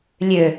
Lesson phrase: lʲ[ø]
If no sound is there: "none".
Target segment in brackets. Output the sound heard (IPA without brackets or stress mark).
ø